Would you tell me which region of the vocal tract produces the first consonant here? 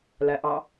tongue tip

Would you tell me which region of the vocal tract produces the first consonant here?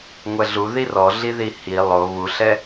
velum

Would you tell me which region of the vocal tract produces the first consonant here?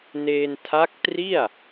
tongue tip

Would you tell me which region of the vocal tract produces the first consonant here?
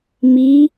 lips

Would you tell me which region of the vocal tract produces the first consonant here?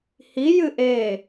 throat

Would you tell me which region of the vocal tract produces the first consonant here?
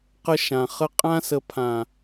uvula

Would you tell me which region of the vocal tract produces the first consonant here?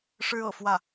retroflex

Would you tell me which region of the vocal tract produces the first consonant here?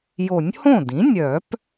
palate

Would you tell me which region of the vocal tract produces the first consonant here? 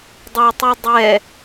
tongue tip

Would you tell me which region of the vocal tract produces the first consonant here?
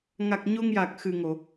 velum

